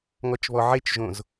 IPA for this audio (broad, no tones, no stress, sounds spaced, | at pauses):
ŋ ɔ t͡ʃ β ɔ ʕ e t͡ʃ ʒ õ z